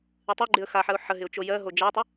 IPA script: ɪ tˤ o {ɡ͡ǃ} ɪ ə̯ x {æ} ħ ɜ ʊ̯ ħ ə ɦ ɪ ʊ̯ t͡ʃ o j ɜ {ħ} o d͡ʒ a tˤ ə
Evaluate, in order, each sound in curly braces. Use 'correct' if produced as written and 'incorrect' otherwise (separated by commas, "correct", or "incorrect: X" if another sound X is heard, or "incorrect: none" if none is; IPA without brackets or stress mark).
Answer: correct, incorrect: a, incorrect: ɦ